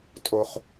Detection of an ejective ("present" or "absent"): present